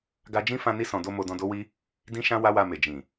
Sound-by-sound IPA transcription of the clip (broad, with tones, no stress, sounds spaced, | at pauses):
ɡ a˧ d͡ʒ ĩ˦ f ã˧ n i˧ s ɔ̃˨ d o˧ m o˧ d ɔ̃˧ d o˦ w i˦ | d ĩ˦ ʃ ã˦ w a˦ w a˧ m e˨ d͡ʒ ĩ˨